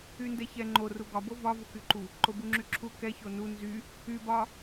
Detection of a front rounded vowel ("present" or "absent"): present